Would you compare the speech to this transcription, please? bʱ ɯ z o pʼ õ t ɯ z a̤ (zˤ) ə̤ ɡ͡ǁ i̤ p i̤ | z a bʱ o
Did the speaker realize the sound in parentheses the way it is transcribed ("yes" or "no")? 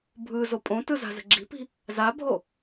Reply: no